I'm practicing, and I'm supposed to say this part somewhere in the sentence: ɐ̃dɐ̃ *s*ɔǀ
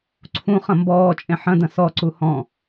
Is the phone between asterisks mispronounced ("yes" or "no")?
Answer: no